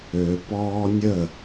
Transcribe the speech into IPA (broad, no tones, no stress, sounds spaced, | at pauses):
ø p ɔː nʲ ə